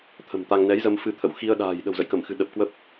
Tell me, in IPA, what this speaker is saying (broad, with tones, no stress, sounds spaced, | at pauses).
t̪ʰ ə̤˨˩ m t̪ a˧ ŋ n ɛ˨˦ j z ə˧ m f ɨ˧ t̪ʰ ə̰˧˨ w x i˧ ə̯ ɗ a̤ː˨˩ j ɗ ə̤˨˩ w z ə̰˧˨ j k ə˧˩ m x ɨ̤˨˩ ɗ ə˨˩ p̚ k w ə˦˥ p̚